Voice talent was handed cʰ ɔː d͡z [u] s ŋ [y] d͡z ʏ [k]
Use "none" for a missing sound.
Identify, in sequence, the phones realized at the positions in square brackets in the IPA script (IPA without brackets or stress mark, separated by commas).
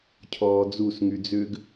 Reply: u, y, ɡ